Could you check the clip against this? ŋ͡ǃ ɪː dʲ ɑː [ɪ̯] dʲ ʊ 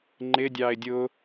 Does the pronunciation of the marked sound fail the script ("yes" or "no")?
no